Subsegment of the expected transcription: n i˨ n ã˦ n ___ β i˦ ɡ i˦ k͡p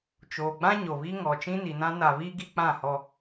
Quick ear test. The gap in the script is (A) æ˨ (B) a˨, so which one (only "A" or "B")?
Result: B